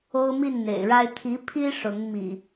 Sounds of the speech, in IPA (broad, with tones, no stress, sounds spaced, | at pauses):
o˦ ʊ̯ m i˥˨ n n̪ ḛ˨˩ ɪ̯ ɻ a˦ ɪ̯ t̪ʰ i˨˦ pʰ i˦ ʂ ʊ˨˦ ŋ m ḭ˨˩